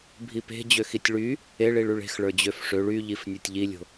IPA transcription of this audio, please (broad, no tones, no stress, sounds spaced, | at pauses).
bʱ i p e̤ d͡ʑ ø x i tʲ ɭ y | e ɭ i ɭ y ɭ e̤ x ɭ ə˞ d͡ʑ ø f ʂ ø ɭ y ʎ i f nʲ ə˞ tʲ ʎ i lʲ o̤